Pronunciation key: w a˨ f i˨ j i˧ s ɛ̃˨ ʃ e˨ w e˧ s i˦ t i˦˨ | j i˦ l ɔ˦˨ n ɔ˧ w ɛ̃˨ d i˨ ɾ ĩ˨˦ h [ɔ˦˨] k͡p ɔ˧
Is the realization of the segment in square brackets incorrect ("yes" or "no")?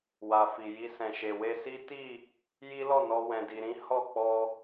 no